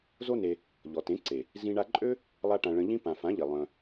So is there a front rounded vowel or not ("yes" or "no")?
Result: yes